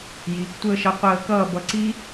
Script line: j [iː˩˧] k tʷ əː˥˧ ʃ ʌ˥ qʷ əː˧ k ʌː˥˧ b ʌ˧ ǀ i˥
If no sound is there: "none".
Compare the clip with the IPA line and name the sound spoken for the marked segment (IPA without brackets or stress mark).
iː˩˧